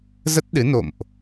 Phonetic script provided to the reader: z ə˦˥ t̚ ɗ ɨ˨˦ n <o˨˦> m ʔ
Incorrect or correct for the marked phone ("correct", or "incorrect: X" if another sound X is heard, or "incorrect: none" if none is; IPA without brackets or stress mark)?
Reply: incorrect: o̰˧˨